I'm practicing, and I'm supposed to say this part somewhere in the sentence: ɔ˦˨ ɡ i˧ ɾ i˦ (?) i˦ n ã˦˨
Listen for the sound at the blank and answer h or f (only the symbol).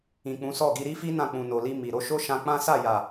f